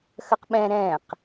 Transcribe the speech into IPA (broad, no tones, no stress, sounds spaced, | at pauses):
x ə q ɓ ɛ̃ ɾ ɛ̃ q